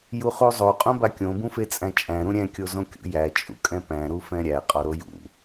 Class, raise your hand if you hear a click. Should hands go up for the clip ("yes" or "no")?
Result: no